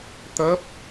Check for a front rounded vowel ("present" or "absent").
absent